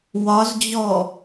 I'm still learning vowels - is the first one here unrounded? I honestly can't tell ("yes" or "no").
no